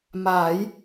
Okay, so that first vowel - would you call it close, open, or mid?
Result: open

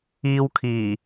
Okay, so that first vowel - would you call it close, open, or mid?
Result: close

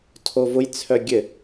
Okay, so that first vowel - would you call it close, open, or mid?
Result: mid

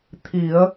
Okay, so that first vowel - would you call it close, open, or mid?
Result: close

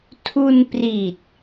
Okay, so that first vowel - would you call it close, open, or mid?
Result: close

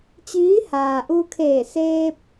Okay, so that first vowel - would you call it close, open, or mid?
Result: close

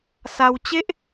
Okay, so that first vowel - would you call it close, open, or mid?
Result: open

